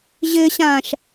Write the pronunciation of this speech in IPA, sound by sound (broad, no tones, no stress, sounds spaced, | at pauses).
ʑ ɘː ɕ ãː ʃ